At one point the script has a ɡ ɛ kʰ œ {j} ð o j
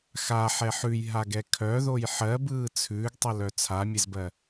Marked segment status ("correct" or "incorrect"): incorrect